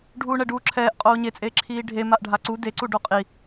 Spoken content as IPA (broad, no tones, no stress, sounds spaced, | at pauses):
ɖʱ uː ɳ ɛ ɖ uː ǁʰ ɛː ʔ qʼ oː ɲ e t͡sʼ eː ǁʰ iː ɖʱ e m a ʔ ɖʱ a ǀ u d e ǀ u ɖ o qʼ i